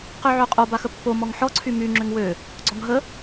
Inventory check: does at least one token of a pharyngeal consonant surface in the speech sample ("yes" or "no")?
yes